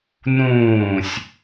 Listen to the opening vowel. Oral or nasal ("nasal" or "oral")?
nasal